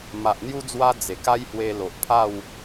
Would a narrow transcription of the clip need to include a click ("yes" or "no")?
no